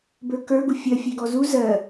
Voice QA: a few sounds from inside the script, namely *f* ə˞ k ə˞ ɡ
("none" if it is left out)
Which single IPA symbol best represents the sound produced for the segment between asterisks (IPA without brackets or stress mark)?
b